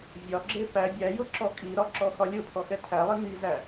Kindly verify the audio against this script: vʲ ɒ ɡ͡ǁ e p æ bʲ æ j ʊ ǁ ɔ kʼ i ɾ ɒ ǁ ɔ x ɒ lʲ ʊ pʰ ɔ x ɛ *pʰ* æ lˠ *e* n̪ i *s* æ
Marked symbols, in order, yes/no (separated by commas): no, no, no